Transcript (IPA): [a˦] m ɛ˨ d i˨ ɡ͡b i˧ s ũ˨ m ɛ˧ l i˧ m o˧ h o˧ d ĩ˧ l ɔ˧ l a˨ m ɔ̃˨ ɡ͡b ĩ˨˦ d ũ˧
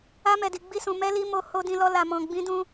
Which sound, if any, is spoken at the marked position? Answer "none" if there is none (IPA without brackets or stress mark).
a˧